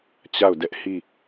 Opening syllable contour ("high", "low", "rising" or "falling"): falling